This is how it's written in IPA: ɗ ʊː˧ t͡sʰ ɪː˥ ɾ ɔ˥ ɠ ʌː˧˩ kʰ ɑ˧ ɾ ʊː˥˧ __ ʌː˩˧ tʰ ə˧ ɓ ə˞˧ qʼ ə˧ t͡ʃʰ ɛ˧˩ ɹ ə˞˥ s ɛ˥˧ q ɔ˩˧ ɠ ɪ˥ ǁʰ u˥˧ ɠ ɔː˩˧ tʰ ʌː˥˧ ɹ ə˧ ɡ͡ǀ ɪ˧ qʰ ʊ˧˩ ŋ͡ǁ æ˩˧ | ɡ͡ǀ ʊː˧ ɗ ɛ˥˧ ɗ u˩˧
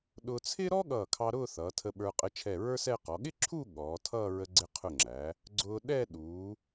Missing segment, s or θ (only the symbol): θ